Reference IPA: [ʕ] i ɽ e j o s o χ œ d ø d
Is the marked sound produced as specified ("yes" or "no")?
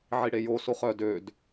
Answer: yes